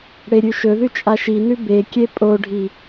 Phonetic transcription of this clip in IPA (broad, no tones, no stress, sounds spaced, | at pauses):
ɽ e ɾʲ ʉ ʃ ɵ ð ʉ t͡ʃʼ a ʃ i n ʉ b e kʲ e pʼ o ɖʱ i